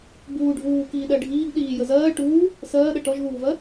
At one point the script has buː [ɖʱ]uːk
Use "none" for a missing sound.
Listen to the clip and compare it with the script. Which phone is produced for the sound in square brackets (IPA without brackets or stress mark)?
ɖʱ